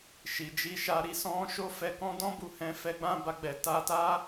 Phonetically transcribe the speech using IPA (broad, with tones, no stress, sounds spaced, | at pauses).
ʃ i˨ d͡ʒ i˧ ʃ a˧ ɾ i˧ s ɔ̃˧ ʃ o˦ f ɛ˧ k ɔ̃˦ d ɔ̃˦ b u˧ h ɛ̃˧ f ɛ˧ ɡ͡b ã˧ b a˧ ɡ͡b ɛ˨ t a˧ t a˦